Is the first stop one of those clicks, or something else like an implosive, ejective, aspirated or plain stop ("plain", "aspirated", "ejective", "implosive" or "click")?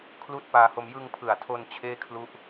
aspirated